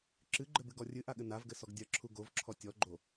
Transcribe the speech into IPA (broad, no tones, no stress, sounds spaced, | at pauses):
ǁ ɨ ɡ͡ǃ ɘ b ɨ ɡ ɔ rʲ ɨ ʔ a ɠ ɘ n a v ɡ ɘ s ɔ ɡ dʲ ɐ ǁʰ u ɡ o v ǁʰ ɔ tʲ ɔ ɡ͡ǃ o